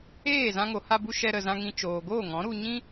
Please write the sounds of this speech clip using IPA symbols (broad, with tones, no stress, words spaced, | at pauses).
eː˦˨ zã˧ŋo˨ha˧bu˧ ʃɛ˧ɾə˨zã˧ŋĩ˧ t͡ʃoː˨ɡoː˦˨ŋɔ̃˨˦ɾu˧ ɲĩ˦